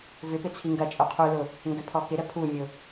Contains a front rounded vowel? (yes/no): yes